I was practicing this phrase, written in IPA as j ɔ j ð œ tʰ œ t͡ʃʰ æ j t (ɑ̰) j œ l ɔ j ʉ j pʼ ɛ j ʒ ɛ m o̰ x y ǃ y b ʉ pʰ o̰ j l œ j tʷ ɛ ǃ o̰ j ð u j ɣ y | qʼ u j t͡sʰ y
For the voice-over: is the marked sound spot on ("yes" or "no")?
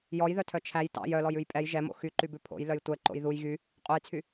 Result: yes